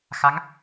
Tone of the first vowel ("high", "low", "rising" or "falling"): rising